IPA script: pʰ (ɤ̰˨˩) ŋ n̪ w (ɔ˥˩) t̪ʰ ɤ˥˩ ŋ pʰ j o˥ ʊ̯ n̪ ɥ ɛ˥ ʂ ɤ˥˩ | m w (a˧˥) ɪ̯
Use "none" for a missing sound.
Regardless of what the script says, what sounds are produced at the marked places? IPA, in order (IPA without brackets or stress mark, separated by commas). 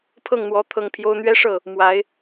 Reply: ɤ˥˩, ɔ˧˥, a˧˥